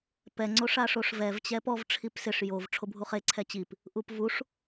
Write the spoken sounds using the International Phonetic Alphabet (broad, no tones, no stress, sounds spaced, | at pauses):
p ɛ ŋ͡ǀ o ʂ a ʂ o ʂ v ɛ v t͡ɕ ɛ p ɔ v ʈ͡ʂʰ i p s ɪ ʂ j o v ʈ͡ʂʰ o bʱ u χ e ǀʰ ɛ t͡ɕ i p | ʔ u p v u ʂ